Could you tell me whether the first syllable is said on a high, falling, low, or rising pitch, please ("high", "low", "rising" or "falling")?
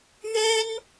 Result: high